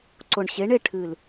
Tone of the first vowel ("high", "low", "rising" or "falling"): low